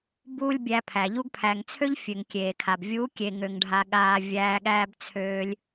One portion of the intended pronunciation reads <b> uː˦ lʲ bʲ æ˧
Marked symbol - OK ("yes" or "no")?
yes